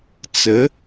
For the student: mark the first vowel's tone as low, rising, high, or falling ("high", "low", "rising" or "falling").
rising